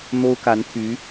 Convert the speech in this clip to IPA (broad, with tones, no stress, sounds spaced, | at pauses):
n̪ o˥ ʊ̯ k a˧˥ n t̪ʰ y˧˥